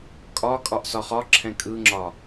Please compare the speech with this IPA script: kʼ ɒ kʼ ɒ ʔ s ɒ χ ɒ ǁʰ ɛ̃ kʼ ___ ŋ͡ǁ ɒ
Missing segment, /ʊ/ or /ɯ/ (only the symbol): ɯ